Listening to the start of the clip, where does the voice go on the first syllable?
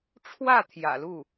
falling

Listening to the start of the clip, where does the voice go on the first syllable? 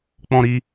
high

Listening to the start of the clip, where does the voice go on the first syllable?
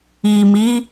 low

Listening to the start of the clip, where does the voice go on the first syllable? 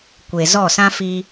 low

